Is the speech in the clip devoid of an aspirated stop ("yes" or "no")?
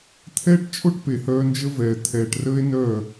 no